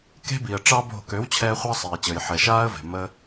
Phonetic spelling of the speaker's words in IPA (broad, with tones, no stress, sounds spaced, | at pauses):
k e̤˦ b i˨ ə̯ ʈ͡ʂ ɑ˦ b o̤˦˨ k ø˨˦ w t͡ɕʰ ɛː˧ χʷ ɑ˦ sˤ iː˨ t͡ɕ əː˨ j ħ ɛ˨ ʃ aː˦ ə̯ v e̤˨ m əː˦